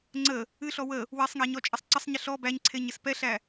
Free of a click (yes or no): no